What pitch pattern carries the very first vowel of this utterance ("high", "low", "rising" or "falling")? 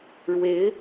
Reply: rising